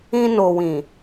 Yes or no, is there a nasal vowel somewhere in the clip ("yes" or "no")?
yes